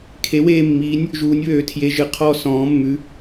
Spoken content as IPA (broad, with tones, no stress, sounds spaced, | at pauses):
kʰ e˧˥ w eː˥˧ mː iː˧˥ nʲ | ʒ uː˧˥ nʲ β ø˧˥ tʰ j e˧˥ ʒ ɨ˧ qʰ ɔ˥˧ s ɔ̃ː˧˥ mː ʉ˧˥